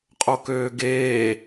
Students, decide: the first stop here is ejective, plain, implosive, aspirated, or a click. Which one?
ejective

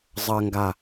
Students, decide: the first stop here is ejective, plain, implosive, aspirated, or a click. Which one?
plain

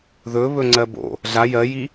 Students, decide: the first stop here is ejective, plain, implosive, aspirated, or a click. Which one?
click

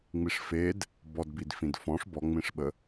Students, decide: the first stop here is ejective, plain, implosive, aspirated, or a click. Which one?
plain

